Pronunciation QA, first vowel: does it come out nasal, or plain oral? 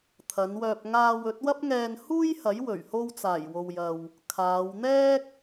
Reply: oral